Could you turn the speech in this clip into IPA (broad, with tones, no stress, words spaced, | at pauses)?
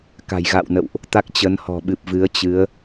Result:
ka̤˨˩jɣa̰˧˨wnə̰˧˨wʔ | t̪a˦˥k̚t͡ɕə˨˦nhɔ̤˨˩ɓɨ˨˩p̚ vɨ˨˦ə̯t͡ɕɨ˨˦ə̯